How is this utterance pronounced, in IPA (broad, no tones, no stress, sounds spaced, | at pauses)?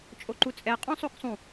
t͡ʃʼ o ǃ u t͡sʼ ɛ qʼ õ sˤ o k sˤ ũ